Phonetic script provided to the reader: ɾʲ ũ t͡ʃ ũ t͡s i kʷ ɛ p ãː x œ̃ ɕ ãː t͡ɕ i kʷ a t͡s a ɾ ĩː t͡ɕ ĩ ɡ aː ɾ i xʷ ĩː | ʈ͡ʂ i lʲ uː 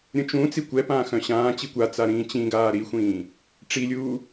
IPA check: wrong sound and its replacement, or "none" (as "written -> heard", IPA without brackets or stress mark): none